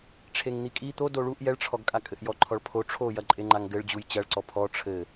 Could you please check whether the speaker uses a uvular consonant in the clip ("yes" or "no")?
no